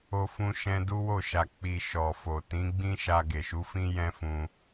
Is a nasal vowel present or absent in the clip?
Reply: present